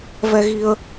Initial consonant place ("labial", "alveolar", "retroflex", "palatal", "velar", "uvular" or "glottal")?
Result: labial